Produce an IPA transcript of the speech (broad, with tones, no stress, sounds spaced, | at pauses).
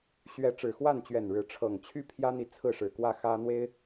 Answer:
ɕ ɥ ɛ˨˦ ʈ͡ʂ ɻ̩˨˩ x w a˥˨ n t͡ɕ ɥ ɛ˨˩ n ɻ ɻ̩˨˦ ʈ͡ʂʰ ɤ˨˩ ŋ t͡ɕʰ y˦ pʰ j ä˦ n̪ i˨ t͡sʰ ɹ̩˥˨ ʂ ɻ̩˨˩ k w ä˥˨ x ä˦ n̪ w e˦ ɪ̯